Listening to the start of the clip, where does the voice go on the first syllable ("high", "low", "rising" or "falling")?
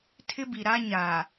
high